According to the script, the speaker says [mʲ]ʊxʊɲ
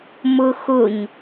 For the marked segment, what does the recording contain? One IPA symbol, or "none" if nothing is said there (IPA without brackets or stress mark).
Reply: m